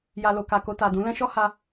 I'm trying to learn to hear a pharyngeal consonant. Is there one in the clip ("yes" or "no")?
no